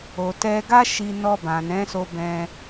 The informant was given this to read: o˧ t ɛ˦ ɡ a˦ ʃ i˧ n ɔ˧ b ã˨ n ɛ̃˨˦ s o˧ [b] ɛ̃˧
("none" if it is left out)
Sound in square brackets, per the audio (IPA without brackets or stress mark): b